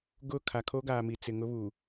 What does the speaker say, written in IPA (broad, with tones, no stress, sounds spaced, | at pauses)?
ɡ ʊ˦˨ kʰ a˨ kʰ o˦ ɡ aː˨ m i˨ t͡s ɪ˨ ŋ ʊ˦ β u˨